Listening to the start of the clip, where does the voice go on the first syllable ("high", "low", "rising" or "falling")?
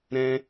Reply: high